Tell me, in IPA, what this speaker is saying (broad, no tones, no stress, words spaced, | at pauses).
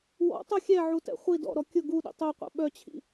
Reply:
wɔ̰tˤu xʲɛʕutɛ̰ χʷi dɔ̰ɾɔ kʲʊ ɡuɗḭ tˤœqʷɛ̰ ɓœt͡ɕʰḭ